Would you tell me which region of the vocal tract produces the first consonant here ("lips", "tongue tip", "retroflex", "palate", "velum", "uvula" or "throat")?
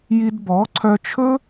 palate